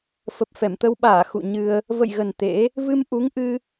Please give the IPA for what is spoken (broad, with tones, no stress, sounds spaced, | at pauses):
f ə˨˩ p̚ f ɛ˧˩ m t̪ ə˧ w ɓ aː˧˩ x ṵ˧˨ ɲ ɨ˧ ə̯ | v ə̰˧˨ j ɣ ə˨˩ n t̪ ḛ˧˥ | v ɨ˧ m ʔ u˨˦ ŋ ʔ ɨ˧